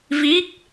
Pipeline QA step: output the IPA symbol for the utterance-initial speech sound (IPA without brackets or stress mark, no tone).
v